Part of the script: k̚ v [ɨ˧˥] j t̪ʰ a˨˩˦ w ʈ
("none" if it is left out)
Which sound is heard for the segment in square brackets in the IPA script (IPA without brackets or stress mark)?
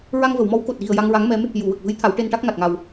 ɨ˧˥